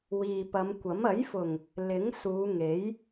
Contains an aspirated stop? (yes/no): no